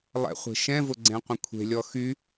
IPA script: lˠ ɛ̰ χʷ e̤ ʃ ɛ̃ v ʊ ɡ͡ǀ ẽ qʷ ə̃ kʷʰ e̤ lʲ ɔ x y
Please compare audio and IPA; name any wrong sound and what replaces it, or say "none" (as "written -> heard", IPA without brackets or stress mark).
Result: none